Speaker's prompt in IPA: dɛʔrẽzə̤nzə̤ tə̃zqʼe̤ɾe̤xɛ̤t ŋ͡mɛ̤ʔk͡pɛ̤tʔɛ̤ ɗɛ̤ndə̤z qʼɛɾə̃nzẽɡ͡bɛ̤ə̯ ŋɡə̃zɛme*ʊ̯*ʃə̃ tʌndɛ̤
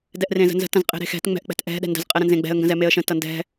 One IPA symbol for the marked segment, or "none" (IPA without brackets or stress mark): ə̯